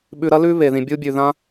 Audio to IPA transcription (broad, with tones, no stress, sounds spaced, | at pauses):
ɓ ʉ˨ ɾ ɐ˥ l ʉ˦ β e˩ ð ĩ˩ bʲ u˦ bʲ ʉ˩ ð ã˥